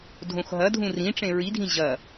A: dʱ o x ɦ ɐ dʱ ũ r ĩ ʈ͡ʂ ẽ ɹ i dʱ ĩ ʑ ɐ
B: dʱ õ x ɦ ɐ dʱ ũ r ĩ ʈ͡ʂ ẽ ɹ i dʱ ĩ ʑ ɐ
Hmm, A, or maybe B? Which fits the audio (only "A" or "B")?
B